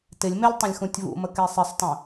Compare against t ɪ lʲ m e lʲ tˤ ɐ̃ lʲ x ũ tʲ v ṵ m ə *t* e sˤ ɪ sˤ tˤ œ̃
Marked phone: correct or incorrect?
incorrect